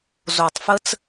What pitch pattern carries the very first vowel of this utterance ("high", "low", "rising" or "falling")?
low